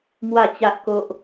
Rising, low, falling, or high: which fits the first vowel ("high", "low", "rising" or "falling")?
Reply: falling